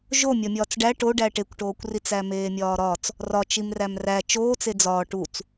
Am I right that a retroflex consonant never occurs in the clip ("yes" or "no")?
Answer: no